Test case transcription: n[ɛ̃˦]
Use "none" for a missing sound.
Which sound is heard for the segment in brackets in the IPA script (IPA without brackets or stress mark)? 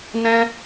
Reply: ɛ̃˦